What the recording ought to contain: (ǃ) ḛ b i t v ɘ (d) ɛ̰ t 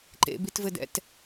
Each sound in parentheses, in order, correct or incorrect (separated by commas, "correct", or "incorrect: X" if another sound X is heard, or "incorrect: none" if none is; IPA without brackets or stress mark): correct, correct